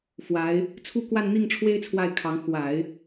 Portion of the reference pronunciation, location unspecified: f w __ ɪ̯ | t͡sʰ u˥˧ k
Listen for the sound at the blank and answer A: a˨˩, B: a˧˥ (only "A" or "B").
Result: B